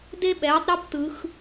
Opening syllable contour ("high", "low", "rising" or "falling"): high